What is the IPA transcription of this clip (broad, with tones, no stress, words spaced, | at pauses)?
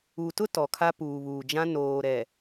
u˨tʊ˦ tɔ˨kʰa˦ puː˨βuː˨d͡ʒã˦ noː˨ɾɛ˨